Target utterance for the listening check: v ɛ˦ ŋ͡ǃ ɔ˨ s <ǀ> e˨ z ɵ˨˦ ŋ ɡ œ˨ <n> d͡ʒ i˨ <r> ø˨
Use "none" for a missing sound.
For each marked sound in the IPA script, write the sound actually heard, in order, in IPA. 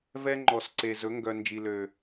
ǀ, n, l

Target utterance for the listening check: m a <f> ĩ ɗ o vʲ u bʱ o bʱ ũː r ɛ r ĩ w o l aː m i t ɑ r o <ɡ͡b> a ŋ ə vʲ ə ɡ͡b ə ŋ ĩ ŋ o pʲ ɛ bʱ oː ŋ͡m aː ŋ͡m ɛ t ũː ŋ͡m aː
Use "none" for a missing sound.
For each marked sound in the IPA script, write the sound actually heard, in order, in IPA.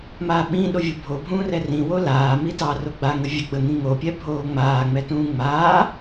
ɓ, ɡ͡b

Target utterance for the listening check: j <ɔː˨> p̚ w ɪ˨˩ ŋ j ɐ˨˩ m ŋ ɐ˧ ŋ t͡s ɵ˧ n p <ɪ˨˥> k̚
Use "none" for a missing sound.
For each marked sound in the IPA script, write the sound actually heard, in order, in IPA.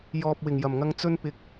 ɔː˨, ɪ˨˥

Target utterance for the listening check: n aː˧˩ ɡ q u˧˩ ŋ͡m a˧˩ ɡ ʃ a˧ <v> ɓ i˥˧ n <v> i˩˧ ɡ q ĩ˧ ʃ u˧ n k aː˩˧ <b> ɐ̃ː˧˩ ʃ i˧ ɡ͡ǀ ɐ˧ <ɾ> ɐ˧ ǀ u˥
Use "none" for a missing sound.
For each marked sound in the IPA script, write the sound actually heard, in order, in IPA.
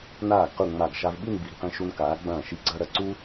v, b, ɡ͡b, ɾ

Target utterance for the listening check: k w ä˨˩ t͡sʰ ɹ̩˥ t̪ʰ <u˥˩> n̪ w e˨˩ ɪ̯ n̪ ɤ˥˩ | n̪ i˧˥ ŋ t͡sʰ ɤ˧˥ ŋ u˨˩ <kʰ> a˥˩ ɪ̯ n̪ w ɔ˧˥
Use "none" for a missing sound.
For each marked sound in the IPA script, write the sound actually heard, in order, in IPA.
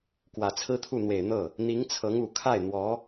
u˥˩, kʰ

